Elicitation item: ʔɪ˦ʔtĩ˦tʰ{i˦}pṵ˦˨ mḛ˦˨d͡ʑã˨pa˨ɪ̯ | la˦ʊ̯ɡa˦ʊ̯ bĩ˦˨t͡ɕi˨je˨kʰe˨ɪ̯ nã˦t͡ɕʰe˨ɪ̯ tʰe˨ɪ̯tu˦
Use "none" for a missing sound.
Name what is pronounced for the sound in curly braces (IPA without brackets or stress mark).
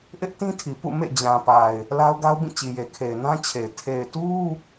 i˨